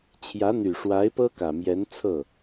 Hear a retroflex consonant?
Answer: yes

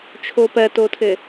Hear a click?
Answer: no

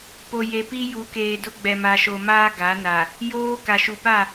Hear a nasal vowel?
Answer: no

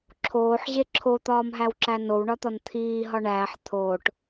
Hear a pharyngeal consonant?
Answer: yes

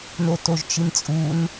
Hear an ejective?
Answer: yes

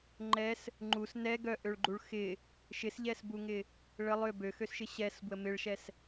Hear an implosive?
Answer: no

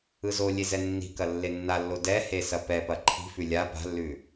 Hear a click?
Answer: yes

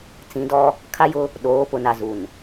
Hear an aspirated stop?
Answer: yes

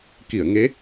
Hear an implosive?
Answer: no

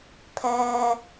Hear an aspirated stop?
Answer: yes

